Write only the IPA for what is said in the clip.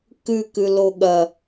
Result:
kʉkʉ loɠɐ

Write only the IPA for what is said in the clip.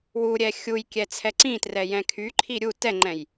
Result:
wuɾʲɛ xʲujkʲɛ t͡sʰɛǀĩtrɛ jɛ̃kʰyǃʰi ɾʲu tɛŋ͡ǃɛ̃j

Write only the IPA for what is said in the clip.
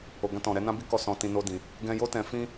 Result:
o˨ɡã˧tɔ̃˨ ɾɛ˨˦nã˦ bi˦kɔ˧ sɔ̃˧tĩ˧ no˦dĩ˧ | ɡɛ̃˧jo˦ tɛ̃˧fĩ˦

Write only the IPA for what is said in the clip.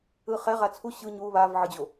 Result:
ɯχɛ ʁat͡sʰu ɕɯ ɲu βav ʕɯd͡ʑo

